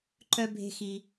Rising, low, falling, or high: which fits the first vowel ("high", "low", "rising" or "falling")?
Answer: high